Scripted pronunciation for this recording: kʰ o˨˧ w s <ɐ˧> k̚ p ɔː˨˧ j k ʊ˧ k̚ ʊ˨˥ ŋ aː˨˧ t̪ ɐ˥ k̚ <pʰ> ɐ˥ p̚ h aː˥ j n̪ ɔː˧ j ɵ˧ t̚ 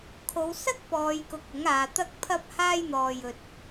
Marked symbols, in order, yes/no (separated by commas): no, yes